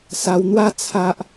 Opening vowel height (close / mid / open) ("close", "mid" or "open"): open